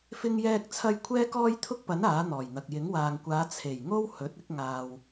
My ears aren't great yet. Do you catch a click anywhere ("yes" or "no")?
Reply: no